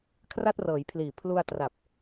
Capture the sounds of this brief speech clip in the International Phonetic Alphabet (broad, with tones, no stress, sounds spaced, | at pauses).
kʰ r a˥˩ t̚ r ɤː˩˦ j pʰ l iː˨˩ pʰ l u˧ a̯ t r a˨˩ p̚